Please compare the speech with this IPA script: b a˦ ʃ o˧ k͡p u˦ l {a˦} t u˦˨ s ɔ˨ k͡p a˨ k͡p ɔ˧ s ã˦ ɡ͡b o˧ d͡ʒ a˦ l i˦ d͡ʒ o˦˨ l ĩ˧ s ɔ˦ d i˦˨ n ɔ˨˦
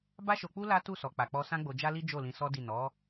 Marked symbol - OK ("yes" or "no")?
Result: yes